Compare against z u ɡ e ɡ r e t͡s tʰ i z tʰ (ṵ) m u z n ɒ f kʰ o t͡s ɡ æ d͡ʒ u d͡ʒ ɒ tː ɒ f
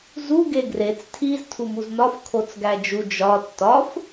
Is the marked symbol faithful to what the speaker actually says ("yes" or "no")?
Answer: no